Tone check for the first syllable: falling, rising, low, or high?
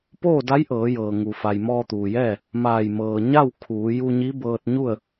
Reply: falling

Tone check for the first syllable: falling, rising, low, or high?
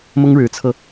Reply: high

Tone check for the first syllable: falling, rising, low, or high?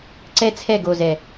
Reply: high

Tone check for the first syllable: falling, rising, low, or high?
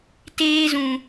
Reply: high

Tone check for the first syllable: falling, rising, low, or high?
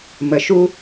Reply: low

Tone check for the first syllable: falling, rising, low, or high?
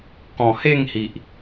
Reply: low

